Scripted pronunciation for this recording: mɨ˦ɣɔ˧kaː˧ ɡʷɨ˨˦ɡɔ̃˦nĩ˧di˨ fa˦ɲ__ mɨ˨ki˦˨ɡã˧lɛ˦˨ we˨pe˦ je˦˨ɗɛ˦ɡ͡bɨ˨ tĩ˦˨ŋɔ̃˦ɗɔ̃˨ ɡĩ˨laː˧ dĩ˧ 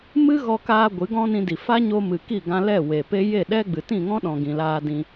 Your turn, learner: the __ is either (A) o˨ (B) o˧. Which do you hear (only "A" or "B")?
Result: B